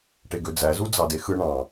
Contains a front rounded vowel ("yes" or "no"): yes